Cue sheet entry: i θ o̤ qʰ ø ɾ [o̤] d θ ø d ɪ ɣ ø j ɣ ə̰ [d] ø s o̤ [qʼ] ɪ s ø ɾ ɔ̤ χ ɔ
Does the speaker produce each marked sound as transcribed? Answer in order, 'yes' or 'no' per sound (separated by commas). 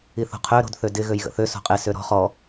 yes, no, yes